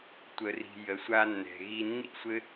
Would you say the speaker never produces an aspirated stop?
yes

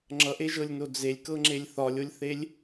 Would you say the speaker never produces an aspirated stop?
yes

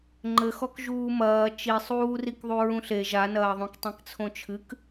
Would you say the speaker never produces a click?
no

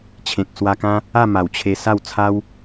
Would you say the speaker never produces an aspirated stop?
no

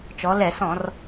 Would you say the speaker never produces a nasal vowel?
no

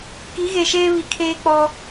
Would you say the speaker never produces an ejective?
yes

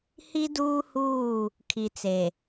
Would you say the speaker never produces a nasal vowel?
yes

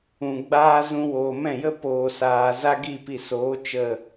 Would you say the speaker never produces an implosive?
yes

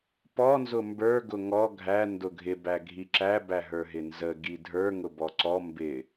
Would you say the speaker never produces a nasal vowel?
yes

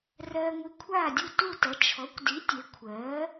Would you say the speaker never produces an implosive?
yes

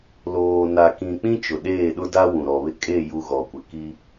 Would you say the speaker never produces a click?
yes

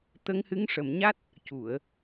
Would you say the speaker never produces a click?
yes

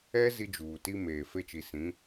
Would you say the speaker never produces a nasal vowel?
no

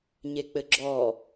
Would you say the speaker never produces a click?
no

